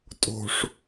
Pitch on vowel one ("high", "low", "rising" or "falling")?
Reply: low